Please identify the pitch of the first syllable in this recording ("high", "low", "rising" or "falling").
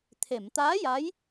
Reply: low